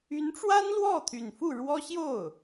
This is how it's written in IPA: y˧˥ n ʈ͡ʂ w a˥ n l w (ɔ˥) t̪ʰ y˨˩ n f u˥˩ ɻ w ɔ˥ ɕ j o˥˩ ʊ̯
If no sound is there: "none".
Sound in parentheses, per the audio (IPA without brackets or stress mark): ɔ˥˩